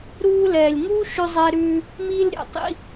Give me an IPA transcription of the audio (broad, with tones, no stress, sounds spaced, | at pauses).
ɾ uː˧ l ɛː˨ lʲ ŋ uː˦ ʃ ʉ˧ zˤ ɛ˧ ɾ ʉː˧ | m iː˧ l ɾʲ ɛ̰˨ tˤ ḭ˧